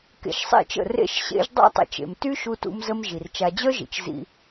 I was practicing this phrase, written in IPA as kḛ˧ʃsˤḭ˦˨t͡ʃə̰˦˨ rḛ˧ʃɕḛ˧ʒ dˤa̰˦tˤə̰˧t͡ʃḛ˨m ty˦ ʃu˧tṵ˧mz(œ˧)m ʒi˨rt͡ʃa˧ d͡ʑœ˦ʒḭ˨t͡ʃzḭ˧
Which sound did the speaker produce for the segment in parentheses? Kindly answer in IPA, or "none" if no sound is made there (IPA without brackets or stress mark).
ə˧